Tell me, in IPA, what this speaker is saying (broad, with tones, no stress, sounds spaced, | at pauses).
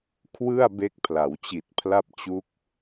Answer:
kʰ w ɯ˥˩ a̯ b e˦˥ k̚ pʰ l a˩˦ w t͡ɕ i˨˩ t̚ pʰ l a˥˩ p̚ t͡ɕ u˦˥ k̚